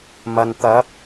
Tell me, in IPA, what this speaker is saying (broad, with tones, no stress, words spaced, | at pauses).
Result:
mɐ˨n t̪ɐ˨˥p̚